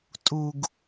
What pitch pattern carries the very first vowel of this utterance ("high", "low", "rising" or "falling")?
low